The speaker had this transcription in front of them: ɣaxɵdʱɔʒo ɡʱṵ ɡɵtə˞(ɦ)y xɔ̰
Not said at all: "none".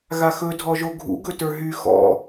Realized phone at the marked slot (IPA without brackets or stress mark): ɦ